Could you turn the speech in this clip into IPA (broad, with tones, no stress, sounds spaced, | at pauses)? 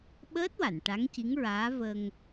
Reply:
ɓ əː˦˥ t̚ w a˨˩˨ n ʈ a˧˥ ŋ c i˧˥ ŋ ɹ aː˧˥ v ə˧ ŋ